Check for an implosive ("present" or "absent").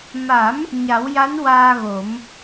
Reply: absent